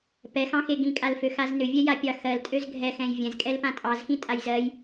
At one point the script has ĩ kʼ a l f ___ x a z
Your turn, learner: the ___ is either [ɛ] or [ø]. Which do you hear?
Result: ø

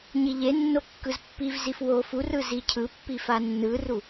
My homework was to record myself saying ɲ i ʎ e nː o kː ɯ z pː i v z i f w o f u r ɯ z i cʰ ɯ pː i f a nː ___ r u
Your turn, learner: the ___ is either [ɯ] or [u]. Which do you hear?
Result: ɯ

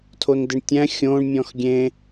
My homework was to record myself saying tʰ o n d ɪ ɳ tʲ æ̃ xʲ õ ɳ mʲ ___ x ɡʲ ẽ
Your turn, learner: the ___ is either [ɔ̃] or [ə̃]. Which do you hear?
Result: ɔ̃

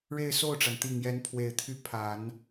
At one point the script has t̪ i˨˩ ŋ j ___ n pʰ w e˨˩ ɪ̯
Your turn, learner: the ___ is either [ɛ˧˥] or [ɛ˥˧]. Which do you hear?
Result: ɛ˧˥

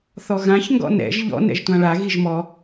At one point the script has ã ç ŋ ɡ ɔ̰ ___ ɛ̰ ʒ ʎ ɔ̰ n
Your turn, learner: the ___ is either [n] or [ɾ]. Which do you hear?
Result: n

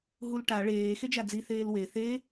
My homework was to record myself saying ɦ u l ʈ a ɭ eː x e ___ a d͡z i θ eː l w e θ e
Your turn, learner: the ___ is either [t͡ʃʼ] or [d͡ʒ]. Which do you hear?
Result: d͡ʒ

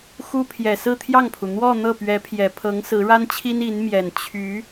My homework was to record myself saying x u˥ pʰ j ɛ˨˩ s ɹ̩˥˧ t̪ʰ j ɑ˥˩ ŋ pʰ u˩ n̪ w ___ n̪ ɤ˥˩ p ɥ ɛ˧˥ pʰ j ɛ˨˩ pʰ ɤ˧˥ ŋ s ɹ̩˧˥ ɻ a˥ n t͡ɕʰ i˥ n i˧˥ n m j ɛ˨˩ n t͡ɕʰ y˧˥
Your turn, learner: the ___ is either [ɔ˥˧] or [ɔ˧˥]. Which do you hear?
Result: ɔ˥˧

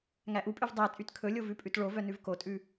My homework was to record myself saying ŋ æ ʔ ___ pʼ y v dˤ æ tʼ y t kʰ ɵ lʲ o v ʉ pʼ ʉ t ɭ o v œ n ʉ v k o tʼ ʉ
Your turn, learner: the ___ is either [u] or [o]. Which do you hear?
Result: u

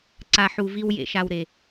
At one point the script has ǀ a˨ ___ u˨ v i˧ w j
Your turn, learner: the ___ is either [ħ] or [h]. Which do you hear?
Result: ħ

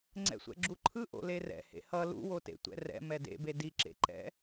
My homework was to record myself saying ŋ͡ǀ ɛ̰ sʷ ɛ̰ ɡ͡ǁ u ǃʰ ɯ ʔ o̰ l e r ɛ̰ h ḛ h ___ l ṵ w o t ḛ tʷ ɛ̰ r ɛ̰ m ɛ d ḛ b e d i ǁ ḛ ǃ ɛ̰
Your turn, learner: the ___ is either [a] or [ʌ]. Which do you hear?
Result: ʌ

